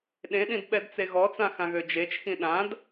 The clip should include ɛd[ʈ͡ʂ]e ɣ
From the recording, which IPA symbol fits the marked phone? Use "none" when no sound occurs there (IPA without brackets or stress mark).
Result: t͡s